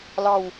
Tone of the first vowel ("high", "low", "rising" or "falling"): falling